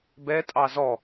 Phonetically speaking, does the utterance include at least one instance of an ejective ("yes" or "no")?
yes